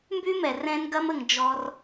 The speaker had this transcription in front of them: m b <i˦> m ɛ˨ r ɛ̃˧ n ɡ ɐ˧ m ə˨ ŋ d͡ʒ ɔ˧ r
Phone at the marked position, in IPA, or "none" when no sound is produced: y˦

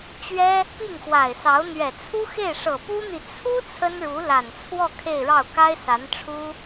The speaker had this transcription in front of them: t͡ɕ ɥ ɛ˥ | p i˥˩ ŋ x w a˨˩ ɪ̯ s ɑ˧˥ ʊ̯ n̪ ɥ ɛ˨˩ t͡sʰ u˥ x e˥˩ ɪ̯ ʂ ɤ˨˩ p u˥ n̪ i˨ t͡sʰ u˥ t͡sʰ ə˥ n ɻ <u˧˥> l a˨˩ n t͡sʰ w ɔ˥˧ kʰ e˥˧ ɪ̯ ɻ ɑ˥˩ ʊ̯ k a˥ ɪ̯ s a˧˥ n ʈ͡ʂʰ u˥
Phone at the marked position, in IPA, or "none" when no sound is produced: u˧˥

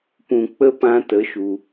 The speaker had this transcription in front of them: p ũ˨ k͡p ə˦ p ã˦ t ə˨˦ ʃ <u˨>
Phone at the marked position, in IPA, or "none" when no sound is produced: u˨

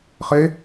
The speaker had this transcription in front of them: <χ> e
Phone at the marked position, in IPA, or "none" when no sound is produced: χ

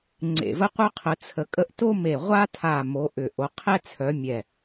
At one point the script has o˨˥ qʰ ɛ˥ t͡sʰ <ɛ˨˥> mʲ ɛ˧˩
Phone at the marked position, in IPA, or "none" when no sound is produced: œ˨˥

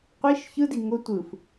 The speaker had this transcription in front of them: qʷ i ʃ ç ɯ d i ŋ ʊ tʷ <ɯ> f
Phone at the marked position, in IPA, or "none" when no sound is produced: ɯ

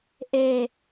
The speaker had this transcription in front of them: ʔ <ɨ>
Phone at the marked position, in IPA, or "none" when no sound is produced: e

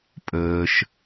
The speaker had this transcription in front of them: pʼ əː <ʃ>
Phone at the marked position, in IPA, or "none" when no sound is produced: ʃ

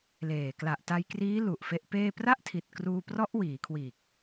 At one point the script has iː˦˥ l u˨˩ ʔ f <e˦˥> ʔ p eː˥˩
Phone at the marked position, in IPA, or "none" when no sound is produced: e˦˥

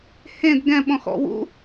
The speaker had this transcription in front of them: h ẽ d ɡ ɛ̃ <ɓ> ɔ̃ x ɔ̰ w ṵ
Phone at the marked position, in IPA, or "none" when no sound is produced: ɓ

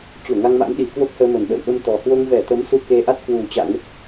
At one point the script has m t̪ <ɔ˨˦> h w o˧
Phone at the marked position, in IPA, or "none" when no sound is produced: ɔ˨˩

